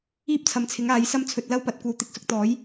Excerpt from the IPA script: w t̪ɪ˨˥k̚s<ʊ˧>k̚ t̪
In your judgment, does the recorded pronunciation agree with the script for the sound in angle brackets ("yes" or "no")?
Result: yes